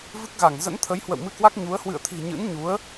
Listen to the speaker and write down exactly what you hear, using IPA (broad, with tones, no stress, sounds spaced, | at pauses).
v ɨ˦˥ k̚ ɣ a˧˩ ŋ z ə̰˧˥ n t̪ʰ ə˨˦ j h w ə̰˧˨ w m ɨ˧ k w a˦˥ k̚ ɲ u˨˦ ə̯ h w ɨ̰˧˨ ə̯ t̪ʰ i̤˨˩ ɲ ɨ̰˧˥ n ɲ u˨˦ ə̯